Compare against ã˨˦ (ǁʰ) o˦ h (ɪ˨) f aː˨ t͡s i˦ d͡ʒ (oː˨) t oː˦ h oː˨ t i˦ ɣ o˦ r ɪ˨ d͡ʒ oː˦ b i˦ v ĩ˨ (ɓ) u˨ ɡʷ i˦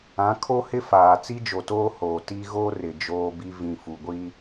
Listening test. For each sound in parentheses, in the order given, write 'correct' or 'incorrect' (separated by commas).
incorrect, incorrect, incorrect, incorrect